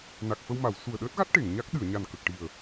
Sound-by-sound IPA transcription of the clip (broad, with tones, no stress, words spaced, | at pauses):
na˨˩k̚fə˧wma˨˩˨w su˨˩ə̯ɗəː˦˥t̚ɣa˦˥t̚ ʈe˨˩˨ŋɲa˦˥k̚ɗɨ˨˩˨ə̯ ɲa˨˩nkə˨˩k̚ ʈi˨˩ə̯